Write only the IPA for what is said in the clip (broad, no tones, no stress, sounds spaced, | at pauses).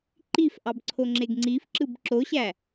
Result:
ǃ i f ʔ ɑ b ǀʰ o ŋ͡ǁ e ɡ ŋ͡ǀ i f ǁ ɯ b ǁ o ɕ æ